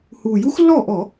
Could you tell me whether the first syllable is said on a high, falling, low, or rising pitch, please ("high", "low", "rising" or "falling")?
low